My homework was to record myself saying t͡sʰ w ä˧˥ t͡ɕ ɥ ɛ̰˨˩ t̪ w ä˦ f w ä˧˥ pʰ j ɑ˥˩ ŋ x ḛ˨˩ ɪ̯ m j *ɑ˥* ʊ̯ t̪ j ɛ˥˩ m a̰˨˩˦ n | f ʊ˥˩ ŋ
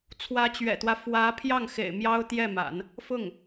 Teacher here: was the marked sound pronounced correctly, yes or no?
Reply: yes